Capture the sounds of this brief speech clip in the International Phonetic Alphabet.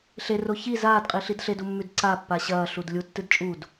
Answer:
ɬ e r o ç i z aː d qʼ i ɬ i d ɬ e d u mː ʉ d ǀ a pː a ɕ ɐː ɬ u d lʲ u tː ɨ d t͡ʃʼ u d

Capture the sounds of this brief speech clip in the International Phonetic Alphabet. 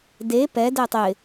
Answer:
d e p ɛ d ɛ tˤ ɪ

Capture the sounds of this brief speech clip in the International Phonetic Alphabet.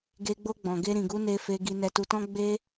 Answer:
ɡ e˧ ɡ͡b o˧ ɡ͡b ɔ̃˨ ɡ e˧ ɾ ĩ˨ ɡ u˨˦ n e˧ f e˧ ɡ i˧ n ɛ˧ t u˧ t ɔ̃˦ ɡ͡b e˦

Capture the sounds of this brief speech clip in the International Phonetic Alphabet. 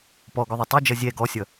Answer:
p ɔ ɡ ɵ ðˤ ɵ tˤ ɵ d͡ʒ ʌ zʲ ɛ ɡ ɔ sʲ ʌ

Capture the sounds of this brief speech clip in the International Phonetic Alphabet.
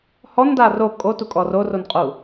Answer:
h ɔ n d a r o kʼ o t u kʼ ɔ r o r o n qʼ u

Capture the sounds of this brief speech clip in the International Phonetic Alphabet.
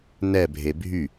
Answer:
n ɛ bʱ e bʱ y

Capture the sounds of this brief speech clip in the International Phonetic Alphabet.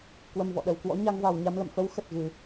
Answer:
k w ə˧ m v ɔ̰˧˨ ɗ ə˨˩ w k w ɔ̰˧˥ ɲ a˧ ŋ v a˨˩ w ɲ a˧ m l ə̰˧˨ m f ə˨˦ w x ə˨˩ t̚ ɣ ɨ˧˩˨

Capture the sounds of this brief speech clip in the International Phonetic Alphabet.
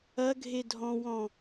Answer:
ɐ ɡʱ e dʱ ɔ̃ w ɔ̃

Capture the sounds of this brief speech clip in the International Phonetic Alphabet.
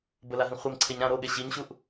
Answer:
b ə l a ɦ ĩ χʷ e m ǀʰ e ɲ ɾ ã ɾ o ɠ e ɕ i ɲ ɕ u ʔ

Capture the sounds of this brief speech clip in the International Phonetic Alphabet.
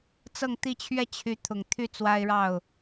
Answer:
t͡s ɤ˥˧ ŋ t̪ i˥˩ t͡ɕʰ ɥ ɛ˥ t͡ɕʰ y˧˥ t̪ʰ ʊ˨˩ ŋ t̪ʰ y˥˩ t͡s w a˥ ɪ̯ ɻ ɑ˥˩ ʊ̯

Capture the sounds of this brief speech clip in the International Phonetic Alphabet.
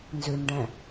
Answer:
n z ʉ n ɖ ɛ̃

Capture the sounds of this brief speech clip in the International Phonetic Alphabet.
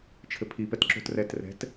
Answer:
t͡ʃʰ ɘ pʰ i p ɛ t ǁ o̤ t r ɛ t r ɛ̤ t

